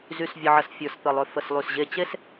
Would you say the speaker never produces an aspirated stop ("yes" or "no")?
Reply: yes